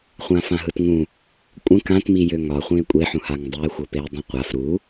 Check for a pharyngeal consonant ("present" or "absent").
present